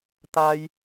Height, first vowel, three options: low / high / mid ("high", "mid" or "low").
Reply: low